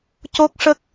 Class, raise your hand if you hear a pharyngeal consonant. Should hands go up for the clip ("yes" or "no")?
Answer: no